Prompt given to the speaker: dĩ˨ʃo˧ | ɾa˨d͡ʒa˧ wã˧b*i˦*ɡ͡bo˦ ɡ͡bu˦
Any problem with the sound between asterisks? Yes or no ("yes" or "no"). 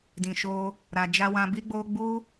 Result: no